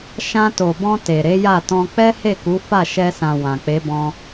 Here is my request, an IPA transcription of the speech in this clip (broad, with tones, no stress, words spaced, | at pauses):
ʃã˧to˨bɔ̃˧ te˨ɾe˨˦ja˦˨tɔ̃˧ k͡pɛ˦he˦˨ ku˨˦ fa˦˨ʃɛ˧sã˨ wã˨ k͡pe˨˦bɔ̃˧